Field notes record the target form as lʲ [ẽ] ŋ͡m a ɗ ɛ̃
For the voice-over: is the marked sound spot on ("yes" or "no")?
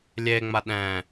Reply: no